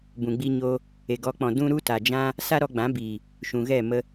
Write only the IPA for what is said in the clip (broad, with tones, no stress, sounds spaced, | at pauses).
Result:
b ũ˨ ɡ͡b i˧ ɲ oː˧ | e˨ ɡ ɔ˨˦ k͡p ɔ̃˨ d ũ˦ ɾ u˦ t a˨ d͡ʒ ã˦ | s a˦ ɾ ɔ˧ ɡ͡b ã˨˦ b iː˨ | ʃ ũ˨ ɣ ɛ˦˨ m ə˧